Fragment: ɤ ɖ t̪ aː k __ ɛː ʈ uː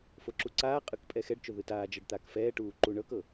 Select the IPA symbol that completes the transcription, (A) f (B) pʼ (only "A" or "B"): A